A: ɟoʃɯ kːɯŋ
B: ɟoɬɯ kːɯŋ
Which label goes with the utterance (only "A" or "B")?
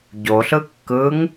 B